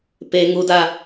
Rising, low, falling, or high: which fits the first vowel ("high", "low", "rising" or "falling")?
high